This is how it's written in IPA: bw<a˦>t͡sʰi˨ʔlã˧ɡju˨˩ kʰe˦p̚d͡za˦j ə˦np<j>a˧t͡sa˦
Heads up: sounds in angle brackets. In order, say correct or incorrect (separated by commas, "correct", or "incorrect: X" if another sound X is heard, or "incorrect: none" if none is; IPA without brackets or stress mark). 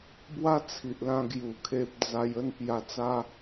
correct, correct